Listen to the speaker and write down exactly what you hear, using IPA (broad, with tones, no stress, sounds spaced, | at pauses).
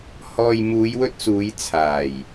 h ɔː˨ j m uː˨˧ j w ɵ˧ t̚ s uː˨˧ j t͡sʰ aː˨˩ j